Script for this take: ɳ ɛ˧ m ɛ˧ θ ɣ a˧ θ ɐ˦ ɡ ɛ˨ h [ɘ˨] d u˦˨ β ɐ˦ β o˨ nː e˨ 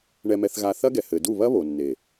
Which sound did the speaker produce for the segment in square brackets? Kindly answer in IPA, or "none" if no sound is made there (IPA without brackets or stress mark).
ɘ˨